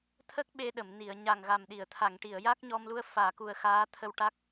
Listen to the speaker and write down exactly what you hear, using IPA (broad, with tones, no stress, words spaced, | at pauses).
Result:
t̪ʰə˦˥k̚ ɓe˧ɗə˨˩˨m ni˨˩˨ə̯ɲa˨˩ŋɣa˨˩mɗi˨˩˨ə̯ t̪ʰa˨˩˨ŋʈi˨˩˨ə̯ja˦˥k̚ ɲɔ˧mlu˧ə̯ faː˨˩˨ku˨˩ə̯ xaː˧˥ t̪ʰə˨˩w ʈa˦˥k̚